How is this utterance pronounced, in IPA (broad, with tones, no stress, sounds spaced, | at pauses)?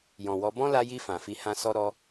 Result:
j ɔ̃˨ w ɔ˨˦ b ɔ̃˦ l a˧ j i˧ f ã˨ f i˧ h ã˦ s ɔ˧ ɾ ɔ˧